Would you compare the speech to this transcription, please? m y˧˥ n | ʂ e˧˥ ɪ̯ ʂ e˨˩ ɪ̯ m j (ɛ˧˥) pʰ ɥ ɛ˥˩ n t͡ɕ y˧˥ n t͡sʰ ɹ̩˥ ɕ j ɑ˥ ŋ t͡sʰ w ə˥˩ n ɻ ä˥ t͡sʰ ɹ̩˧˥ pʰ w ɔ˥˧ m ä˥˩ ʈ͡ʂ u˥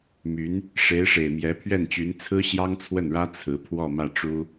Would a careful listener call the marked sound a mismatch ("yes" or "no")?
no